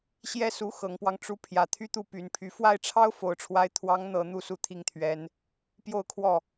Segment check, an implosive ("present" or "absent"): absent